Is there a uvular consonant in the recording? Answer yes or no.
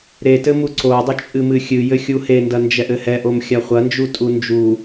yes